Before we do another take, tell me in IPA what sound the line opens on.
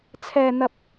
t͡sʰ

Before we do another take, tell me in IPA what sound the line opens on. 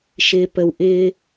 ʃ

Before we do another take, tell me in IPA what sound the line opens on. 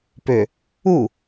p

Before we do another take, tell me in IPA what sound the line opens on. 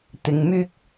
t̪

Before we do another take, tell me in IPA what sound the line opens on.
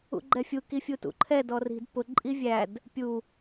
ṵ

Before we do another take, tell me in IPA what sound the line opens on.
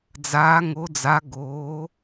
d͡z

